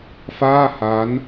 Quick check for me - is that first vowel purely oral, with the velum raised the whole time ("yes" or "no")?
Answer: yes